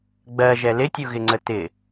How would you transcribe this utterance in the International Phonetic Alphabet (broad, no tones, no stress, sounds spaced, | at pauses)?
ɡ͡b ɜ ʒ ɛ l ɪ tʲ u ɣ ɪ ŋ͡ǀ ə t ɪ